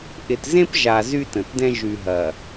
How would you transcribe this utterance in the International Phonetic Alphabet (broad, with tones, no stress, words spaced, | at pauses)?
ʔɪ˨tzẽ˦pʒa˨ zy˦tə̃˨tdɛ̃˦ ʒy˨ ɦɐ˨